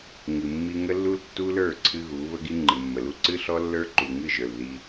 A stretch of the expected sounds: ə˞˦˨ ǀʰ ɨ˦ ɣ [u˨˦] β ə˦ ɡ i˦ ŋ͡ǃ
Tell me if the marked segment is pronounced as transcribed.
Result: yes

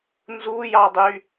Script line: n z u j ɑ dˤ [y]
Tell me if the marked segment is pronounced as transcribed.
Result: yes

